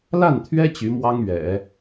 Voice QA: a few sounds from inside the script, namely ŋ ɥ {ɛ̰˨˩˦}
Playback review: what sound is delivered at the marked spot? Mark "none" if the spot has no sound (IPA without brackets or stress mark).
ɛ̰˨˩˦